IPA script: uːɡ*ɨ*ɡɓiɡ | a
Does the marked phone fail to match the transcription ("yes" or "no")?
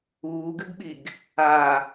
no